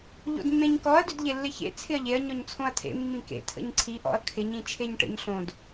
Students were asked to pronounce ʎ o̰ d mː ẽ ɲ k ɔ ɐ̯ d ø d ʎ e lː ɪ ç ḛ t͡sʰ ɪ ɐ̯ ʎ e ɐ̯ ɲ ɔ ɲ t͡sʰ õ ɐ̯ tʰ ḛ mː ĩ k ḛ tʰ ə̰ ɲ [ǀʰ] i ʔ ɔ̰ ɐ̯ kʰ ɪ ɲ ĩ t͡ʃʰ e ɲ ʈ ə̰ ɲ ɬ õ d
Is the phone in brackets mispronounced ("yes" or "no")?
no